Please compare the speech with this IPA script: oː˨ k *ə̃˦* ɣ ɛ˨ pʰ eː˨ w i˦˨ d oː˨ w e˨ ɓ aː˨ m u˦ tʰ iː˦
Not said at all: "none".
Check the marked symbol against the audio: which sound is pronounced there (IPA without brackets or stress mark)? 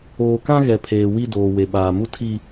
ã˦